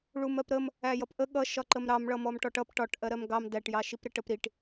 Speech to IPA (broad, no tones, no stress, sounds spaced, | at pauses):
ɭ u m ɜ p ɾ ə m | æ j ʌ p ʔ ə ɠ ʌ ʃ ɒ ǃ ə m ɾ ɑ m ɭ ʌ m ɔ m ʈ ɔ ʈ ʌ p ʈ ɒ ʈ ʔ ɜ ɾ ɜ m ɡ ɑ m d æ ʈ j ɑ ʃ i p ɾ ɪ ʈ ə p ɾ i ʈ